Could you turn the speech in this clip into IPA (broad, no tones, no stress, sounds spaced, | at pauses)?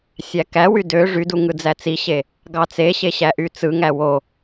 sʲ æ k æ w y d ø ʐ y d u ŋ ɯ d͡z æ t͡s i ɕ e | ɡ ɑ t͡s e ɕ e ɕ æ ʔ y t͡s ɯ ŋ æ w o